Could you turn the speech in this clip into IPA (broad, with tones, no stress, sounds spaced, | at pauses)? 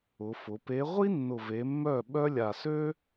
ʊ˩˧ f ʊ˩˧ p e˧˥ ʁʷ i˥ nː ʊ˨˩ v e˩˧ mː œ˥˩ ɓ œ˥ lʲ a˨˩ s ø˥